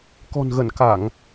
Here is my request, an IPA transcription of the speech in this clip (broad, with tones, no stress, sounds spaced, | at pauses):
k ɔ̤˨˩ n ɣ ə˧˩ n k a˧˩˨ ŋ